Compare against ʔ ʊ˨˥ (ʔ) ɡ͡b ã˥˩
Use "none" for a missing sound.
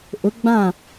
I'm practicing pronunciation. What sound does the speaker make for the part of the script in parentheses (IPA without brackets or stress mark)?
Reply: none